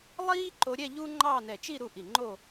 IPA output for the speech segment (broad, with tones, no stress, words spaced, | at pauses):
lˠiː˥ ǃo˧ɾʲɛ˥˧ ʎuː˥ŋ͡ǃɑː˥˧nɛ˧˩ t͡ʃi˥˧ɾu˧ ʔi˧˩ŋ͡ǃo˥˧